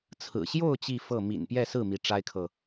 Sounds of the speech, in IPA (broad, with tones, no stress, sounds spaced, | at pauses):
t͡sʰ ɹ̩˨˩ ɕ j o˥˧ ʊ̯ t͡ɕ i˥˧ f ɤ˥˩ m ḭ˨˩ n p j ɛ˥˧ s ɹ̩˥˩ m i˧˥ ʈ͡ʂ a˥ ɪ̯ kʰ ɤ˨